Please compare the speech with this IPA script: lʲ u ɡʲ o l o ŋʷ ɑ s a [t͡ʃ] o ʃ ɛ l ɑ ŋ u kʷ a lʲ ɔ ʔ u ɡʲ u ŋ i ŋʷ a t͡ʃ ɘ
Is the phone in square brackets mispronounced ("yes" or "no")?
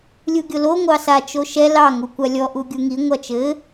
no